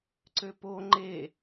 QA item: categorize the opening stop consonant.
click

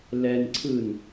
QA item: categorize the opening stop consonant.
click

